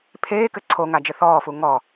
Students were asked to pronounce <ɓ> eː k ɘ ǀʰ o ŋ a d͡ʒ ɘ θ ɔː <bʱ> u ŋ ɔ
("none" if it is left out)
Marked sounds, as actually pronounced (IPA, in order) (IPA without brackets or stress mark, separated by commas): pʰ, f